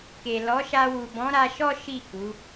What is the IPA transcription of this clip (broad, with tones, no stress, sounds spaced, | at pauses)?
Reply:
k e˨ l ɔ˨˦ ʃ a˧ w u˨ b ɔ̃˨˦ ɾ a˧ ʃ ɔ˦ ʃ i˦˨ k u˨˦